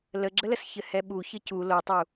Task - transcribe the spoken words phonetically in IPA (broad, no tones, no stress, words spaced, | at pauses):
ləɡ͡ǁələs çɘhɛɓu çɘcu lotˤu